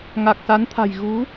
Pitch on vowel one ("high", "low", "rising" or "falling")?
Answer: low